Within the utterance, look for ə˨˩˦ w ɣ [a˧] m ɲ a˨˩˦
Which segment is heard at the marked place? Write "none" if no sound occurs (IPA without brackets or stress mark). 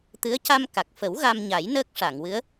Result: a˧